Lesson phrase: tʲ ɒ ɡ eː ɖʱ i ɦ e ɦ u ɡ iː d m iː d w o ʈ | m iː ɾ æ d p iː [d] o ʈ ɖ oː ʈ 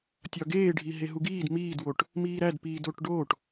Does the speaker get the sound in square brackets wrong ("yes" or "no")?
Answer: no